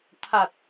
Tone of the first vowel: low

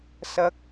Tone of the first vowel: high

